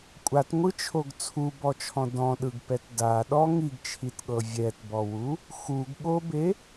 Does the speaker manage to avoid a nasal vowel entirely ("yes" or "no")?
no